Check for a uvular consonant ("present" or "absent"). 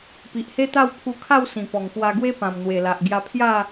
absent